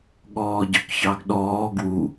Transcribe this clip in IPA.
ɠ ɔː ɟ ɵ k ç ɑ ɡ ɗ ɔː ɡ w u

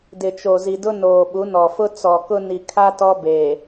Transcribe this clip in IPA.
d ɪ˨ t͡ʃ o˨ z i˨ d ʊ˦ n oː˨ ɓ u˨˦ n ɔ˨ f ʊ˦ t͡s ɔ˨ k ʊ˦ n i˨ kʰ a˦ t ɔ˦ b e˨

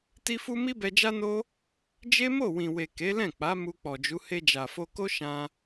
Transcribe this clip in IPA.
t i˦ f u˦ m i˦ b ɛ˧ d͡ʒ a˦ n o˦ | d͡ʒ e˦ m o˦˨ w ĩ˨ w e˨ k e˨˦ l ɛ̃˦˨ k͡p a˨˦ m u˧ k͡p ɔ˨ d͡ʒ u˨˦ h e˧ d͡ʒ a˨ f o˧ k o˦ ʃ ã˦

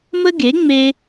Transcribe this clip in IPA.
m ə˥ ɡ e˩˥ ŋ͡m e˧

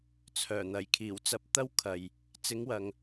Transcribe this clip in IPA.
t͡sʰ œː˨˩ n̪ ɐ˨˩ j kʰ iː˨˩ w t͡s ɐ˧ p̚ t̪ ɐ˥ w kʰ ɐ˨ j | t͡s ɪ˨˧ ŋ w ɐ˨ ŋ

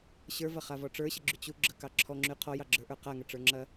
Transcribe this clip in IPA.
ɕ ə˞ v ɐ χ a v ɔ ʈ͡ʂ ə˞ ɕ ə ɡ͡ǁ y t͡ɕ u ɡ͡ǁ ə k ɑ ǁʰ ɔ ŋ͡ǁ y qʰ ɔ j ɑ ɡ͡ǁ ə˞ ʔ ə˞ q a ŋ ɐ ʈ͡ʂ ə˞ ŋ͡ǁ ɐ

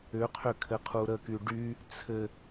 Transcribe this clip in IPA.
ʏ qʰ ʏ kʰ ɘ qʰ u ɾ ə k y ɖ y | t͡sʰ ɘ

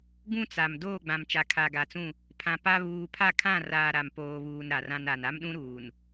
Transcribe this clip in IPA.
ɡ ũ˦ t͡s a˨ m d oː˦˨ ɡ͡b ã˨ m t͡ʃ a˨ kʰ a˨ ɡ a˨ t͡s ũ˦˨ | pʰ ã˨ p a˦ β uː˨ pʰ a˦˨ kʰ ã˦˨ r aː˨ ɾ a˨ m p oː˨ β uː˨ n ɾ a˨ r ã˦ n a˨ n a˦ m ɗ ũ˦ ɾ uː˨ n

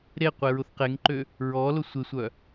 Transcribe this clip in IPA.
ɾ e qʷ e ɹ ʊ θ q e ŋ ǃ ø | ɹ ɔ l ʊ sʷ ɪ sʷ œ

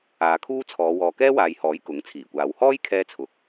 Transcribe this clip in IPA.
aː˨˧ kʰ uː˥ t͡sʰ ɔː˨˧ w ɔː˨ k ɛː˥ w aː˨ j h ɔː˨˥ j k ʊ˨˥ ŋ t͡sʰ iː˨˩ kʷ aː˨˧ w h ɔː˥ j kʰ ɛː˧ t͡sʰ ʊ˨ k̚

